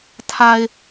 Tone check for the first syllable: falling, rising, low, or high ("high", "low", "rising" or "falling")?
low